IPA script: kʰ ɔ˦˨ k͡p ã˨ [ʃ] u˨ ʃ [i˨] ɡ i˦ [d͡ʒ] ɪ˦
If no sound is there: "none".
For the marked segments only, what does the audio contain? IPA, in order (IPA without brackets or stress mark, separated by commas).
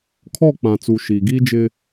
t͡s, i˨, d͡ʒ